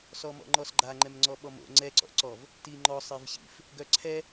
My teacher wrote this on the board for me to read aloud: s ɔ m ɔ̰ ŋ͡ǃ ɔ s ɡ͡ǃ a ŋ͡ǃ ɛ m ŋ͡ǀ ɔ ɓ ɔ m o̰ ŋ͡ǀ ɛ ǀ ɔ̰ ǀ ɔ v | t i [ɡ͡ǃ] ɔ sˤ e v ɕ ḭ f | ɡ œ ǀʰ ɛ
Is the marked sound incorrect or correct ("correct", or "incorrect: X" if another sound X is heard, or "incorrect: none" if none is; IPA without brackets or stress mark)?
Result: incorrect: ŋ͡ǃ